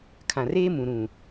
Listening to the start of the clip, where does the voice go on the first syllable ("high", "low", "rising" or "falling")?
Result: low